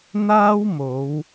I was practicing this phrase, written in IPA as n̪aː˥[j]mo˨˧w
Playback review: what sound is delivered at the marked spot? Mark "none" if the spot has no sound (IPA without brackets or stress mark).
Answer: w